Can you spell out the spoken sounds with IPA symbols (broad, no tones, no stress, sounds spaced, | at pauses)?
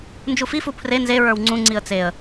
n d͡ʒ u f i f u pʰ r e n z e ɹ ə˞ w ŋ͡ǀ ũ ŋ͡ǀ i ə̯ t͡s e ə̯